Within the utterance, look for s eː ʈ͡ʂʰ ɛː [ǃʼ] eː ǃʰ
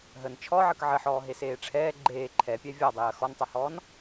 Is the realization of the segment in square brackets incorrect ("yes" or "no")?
yes